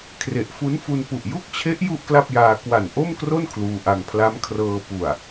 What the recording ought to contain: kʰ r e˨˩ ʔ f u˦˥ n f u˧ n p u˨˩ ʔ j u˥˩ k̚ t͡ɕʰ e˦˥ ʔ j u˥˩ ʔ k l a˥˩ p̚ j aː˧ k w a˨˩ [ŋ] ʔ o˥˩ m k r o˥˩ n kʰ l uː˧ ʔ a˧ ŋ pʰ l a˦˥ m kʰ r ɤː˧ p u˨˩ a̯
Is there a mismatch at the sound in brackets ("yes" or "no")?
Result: yes